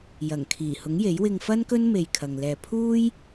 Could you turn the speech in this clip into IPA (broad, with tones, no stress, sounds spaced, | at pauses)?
j ɐ˨˩ ŋ kʰ iː˨˩ h ʊ˨˥ ŋ j e˨˥ j w ɪ˧ ŋ f ɐ˥ n k ɵ˥ n m e˧ j kʰ ɐ˨ ŋ l ɛː˧ pʰ uː˥ j